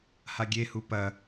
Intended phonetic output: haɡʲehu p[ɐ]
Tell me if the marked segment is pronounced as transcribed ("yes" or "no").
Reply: yes